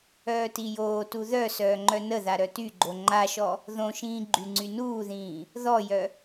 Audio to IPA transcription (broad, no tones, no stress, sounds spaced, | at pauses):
œː t i j oː t u ð œ s œː ŋ͡ǃ œ n ə ð a ɾ œ t y ɡ͡ǃ o ŋ͡ǃ a ʃ ɔ | ð õ ʃ ĩː ɡ͡ǃ y ŋ͡ǀ y n uː ð ĩː | ð ɔ j œ